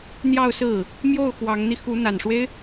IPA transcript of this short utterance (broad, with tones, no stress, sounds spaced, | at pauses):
n̪ j ɑ˥˧ ʊ̯ s ɹ̩˥˩ | m j o˥˩ ʊ̯ x w ɑ˧˥ ŋ n̪ i˧ x u˧˥ n̪ a˨˩ n ʂ w e˦ ɪ̯